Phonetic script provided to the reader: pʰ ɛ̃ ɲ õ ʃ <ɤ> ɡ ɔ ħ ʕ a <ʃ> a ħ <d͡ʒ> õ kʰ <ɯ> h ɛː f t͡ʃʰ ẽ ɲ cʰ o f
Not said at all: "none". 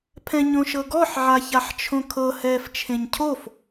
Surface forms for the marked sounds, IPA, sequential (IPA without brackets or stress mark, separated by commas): ɤ, ç, t͡ʃʰ, ɤ